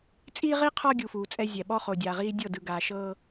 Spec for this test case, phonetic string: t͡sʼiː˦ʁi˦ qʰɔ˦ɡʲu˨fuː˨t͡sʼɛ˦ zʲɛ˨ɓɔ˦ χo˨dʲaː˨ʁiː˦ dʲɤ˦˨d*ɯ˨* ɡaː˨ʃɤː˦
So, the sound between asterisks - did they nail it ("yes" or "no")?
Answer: yes